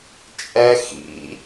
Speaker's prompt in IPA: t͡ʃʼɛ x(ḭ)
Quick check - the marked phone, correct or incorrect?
correct